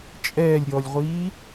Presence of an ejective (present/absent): present